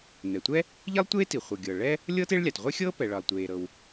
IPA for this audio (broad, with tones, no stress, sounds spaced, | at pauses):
n ɛ˩ tʷ ɛ˥ | ʎ i˥ lˠ tʷ eː˥ t i˩ χʷ ɤ˩ ɡʲ ɤː˩ ɭ ɛ˥ | lʲ ɤː˥ t e˥ ɭ lʲ a˩ t ʁʷ e˥ xʲ ɤː˥ p ɛ˩ ɭ ʌ˩ lˠ tʷ eː˩ ɾ ɤ˩ w